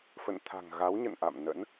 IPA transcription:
fə̰˧˨nt̪ʰa̤˨˩ŋɣa˨˦w ɲə̰˧˨nʔa̰˧˨mnə̰˧˥n

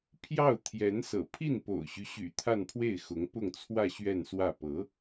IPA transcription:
pʰjɑ˥˩ʊ̯t̪ʰjɛ˧˥nsɤ̰˨˩ pʰi˥˩npo̰˨˩ʊ̯ɕy˦ɕy̰˨˩ t̪ʰa˥˧npʰwe˥˩ɪ̯xʊ˧˥ŋ pʊ˥˧ŋt͡sʰwä˥˧ ɕɥɛ˥˧nswä˥˩ pɤ˧˥

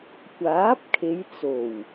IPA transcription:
kʷaː˨˥p̚kʰe˨˧jt͡so˨˩w

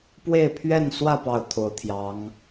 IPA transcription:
pwe˥˧ɪ̯pʰɥɛ˥˧nswä˥˧ pɑ˥˩ʊ̯t̪ʰo˧˥ʊ̯t̪ʰjɑ˧˥ŋ

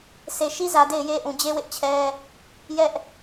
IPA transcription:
se˨ʃi˦zä˨ de˦˨ɪ̯je˦ ʔũ˨d͡ʑe˦wɪ˦ʔ t͡ɕʰɛ˦ | jɛ˦ʔ

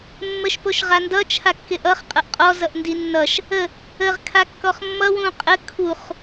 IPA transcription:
mːəʃpoʃʁandʌ t͡ʃʰakːɪʔʌχ qʼʌʔqʼɔ zʌʔndinːʌʃ | ə | əʁ kʰakːɔχmːʌ wũqʼə kʰuχ

